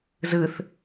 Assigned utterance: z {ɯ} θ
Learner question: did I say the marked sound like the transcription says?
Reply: yes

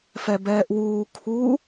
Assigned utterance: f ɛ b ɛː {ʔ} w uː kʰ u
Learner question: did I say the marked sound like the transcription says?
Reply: yes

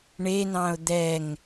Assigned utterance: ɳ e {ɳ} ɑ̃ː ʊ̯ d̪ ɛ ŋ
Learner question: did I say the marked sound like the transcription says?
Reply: no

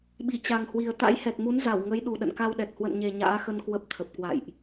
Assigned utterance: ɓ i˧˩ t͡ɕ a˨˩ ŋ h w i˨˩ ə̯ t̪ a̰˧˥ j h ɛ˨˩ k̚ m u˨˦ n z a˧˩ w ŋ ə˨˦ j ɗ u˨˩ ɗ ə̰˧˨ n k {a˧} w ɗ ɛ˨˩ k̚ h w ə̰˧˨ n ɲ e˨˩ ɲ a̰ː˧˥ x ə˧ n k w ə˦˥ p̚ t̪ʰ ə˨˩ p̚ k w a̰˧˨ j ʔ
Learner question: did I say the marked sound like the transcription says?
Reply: yes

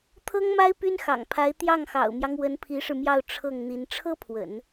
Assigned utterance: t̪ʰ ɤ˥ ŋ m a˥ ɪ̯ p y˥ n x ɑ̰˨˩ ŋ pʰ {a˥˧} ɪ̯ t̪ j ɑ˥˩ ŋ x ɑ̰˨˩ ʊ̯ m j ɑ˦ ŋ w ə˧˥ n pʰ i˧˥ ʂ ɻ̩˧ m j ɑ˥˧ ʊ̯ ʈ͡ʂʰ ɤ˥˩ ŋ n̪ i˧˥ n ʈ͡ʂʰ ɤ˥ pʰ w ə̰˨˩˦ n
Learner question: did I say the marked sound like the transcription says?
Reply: no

